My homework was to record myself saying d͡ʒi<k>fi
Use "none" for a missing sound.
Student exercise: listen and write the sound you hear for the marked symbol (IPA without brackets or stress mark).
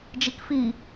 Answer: k